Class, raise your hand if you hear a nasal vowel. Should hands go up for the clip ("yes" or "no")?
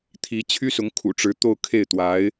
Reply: no